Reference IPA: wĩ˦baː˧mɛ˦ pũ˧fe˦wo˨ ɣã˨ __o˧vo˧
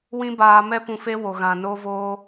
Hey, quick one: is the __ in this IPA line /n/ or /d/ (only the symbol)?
n